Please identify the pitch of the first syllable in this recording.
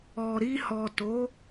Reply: low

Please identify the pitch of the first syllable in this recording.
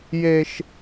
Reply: high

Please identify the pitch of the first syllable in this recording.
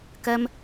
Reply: high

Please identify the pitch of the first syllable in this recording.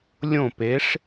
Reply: falling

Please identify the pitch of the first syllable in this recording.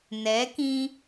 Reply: rising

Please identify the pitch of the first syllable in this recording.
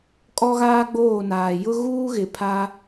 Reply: high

